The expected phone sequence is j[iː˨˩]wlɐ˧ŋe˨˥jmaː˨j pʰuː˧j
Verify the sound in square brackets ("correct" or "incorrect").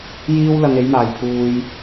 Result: incorrect